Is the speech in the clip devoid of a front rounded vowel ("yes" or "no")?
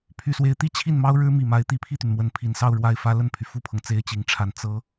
no